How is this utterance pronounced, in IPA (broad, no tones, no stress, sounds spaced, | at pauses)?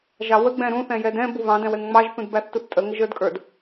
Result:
ʒ ɑ w ə ɡ͡b ɛ̃ ɾ ũ θ ɛ̃ j ɛ d ɛ̃ b u β ɑ̃ d ɛ̃ w ɛ ŋ ŋ͡m ɑ ʒ θ ũ d b æ θ t u θ tʼ ə ŋ ə ʒ ə˞ d kʼ ə˞ d